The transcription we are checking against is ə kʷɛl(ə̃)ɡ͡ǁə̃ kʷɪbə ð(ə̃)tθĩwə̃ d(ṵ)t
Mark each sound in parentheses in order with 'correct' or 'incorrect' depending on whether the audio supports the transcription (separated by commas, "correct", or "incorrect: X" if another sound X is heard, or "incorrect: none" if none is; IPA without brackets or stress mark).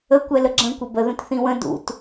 incorrect: ə, correct, correct